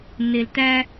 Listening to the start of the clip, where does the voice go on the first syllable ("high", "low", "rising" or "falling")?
low